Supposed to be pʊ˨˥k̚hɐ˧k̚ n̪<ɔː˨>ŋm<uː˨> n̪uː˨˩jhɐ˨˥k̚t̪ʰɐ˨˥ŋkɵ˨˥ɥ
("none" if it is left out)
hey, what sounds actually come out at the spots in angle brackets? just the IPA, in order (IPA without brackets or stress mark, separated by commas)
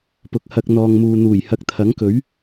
ɔː˨, uː˨